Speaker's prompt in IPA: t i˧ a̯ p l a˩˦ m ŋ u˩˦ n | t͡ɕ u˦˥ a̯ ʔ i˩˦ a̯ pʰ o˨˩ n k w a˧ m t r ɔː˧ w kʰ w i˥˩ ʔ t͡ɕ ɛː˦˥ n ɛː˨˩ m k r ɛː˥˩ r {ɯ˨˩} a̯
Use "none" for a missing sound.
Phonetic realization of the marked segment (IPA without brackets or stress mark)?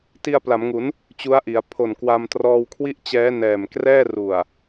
u˨˩